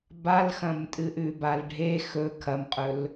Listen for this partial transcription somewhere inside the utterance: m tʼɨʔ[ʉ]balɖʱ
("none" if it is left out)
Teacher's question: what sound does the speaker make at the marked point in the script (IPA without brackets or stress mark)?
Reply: ʉ